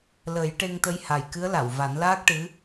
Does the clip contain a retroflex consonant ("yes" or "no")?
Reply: yes